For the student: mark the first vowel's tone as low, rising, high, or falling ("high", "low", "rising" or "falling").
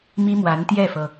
high